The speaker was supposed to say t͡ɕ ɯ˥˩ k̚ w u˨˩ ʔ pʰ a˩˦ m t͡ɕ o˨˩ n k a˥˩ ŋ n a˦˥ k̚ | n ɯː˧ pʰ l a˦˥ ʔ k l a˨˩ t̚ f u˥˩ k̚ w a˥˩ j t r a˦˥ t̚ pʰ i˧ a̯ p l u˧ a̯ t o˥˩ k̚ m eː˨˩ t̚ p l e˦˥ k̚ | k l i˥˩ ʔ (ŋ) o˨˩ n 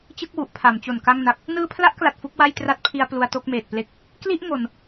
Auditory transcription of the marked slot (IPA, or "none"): ŋ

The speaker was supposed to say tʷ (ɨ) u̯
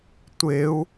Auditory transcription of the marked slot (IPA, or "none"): e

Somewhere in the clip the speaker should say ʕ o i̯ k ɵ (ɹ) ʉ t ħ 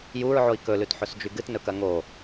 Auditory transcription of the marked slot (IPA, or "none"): l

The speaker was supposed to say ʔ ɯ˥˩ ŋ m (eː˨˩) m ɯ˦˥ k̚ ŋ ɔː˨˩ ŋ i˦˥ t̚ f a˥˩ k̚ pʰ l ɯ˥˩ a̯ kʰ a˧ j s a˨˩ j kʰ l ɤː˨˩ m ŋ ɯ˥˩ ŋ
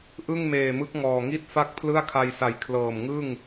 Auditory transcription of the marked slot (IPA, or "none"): eː˨˩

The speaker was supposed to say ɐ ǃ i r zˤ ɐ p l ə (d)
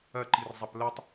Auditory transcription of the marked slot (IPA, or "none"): tˤ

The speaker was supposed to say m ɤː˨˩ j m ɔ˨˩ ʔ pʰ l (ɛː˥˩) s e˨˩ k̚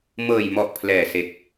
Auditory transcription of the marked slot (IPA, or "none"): ɛː˨˩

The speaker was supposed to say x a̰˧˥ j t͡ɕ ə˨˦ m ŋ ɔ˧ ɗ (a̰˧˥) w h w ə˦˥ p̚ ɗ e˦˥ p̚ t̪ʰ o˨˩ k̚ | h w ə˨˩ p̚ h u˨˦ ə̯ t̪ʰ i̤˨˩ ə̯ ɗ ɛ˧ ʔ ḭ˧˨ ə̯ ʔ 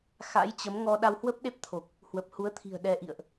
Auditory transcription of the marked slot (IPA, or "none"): a˧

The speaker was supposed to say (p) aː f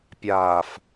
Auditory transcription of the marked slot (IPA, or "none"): pʲ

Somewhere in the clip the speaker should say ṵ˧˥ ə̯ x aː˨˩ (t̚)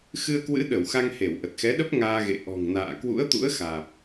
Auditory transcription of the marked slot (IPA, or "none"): p̚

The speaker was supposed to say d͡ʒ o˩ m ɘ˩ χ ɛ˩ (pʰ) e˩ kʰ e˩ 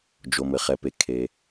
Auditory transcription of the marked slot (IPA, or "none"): p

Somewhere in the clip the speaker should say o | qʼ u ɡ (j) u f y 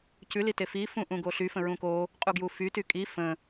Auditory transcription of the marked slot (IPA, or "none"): j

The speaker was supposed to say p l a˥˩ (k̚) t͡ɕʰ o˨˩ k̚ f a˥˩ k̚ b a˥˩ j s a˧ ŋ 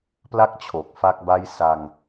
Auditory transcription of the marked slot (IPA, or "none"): k̚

